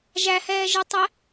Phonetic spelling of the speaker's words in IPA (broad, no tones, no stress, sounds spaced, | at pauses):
ʒ æ h ɛː ʒ ɪ tˤ ə